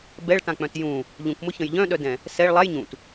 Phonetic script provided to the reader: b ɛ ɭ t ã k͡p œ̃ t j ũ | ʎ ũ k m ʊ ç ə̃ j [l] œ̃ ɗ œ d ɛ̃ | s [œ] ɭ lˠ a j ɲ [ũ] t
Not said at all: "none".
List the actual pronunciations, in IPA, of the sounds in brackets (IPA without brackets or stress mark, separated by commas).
ʎ, ɛ, ũ